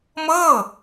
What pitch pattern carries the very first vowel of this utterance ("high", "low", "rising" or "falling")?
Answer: falling